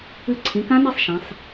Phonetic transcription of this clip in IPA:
ɨ˧ ǀʰ ĩ˩˧ k ã˦˥ n e˧ sˤ ʃ ã˩˧ sˤ

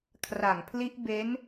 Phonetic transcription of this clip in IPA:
kʰ r a˨˩ ŋ pʰ l i˦˥ ʔ b e˦˥ n

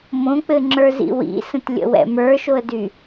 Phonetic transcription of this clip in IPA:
m õ k͡p ɘ ŋ͡ǁ ə˞ z ḭ w ḭ s ə̃ t lʲ ə̰ w ɛ̰ m ə˞ ʃ o ə̯ d y

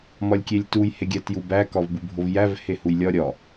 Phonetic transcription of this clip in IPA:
m ɒ lʲ kʲ e lʲ t u j h e ɡʲ æ t j u b æ k ɒ v b u bʱ o v j æ v h e h u j lʲ ɒ ɾʲ ɒ

